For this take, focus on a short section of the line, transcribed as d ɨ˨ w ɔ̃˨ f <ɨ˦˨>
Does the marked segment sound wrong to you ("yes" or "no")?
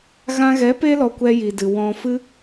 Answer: yes